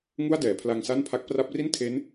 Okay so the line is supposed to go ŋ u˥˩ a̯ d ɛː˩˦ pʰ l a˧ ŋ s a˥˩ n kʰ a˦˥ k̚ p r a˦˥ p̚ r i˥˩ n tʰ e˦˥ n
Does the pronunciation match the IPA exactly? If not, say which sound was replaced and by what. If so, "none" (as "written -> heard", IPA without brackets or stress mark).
kʰ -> pʰ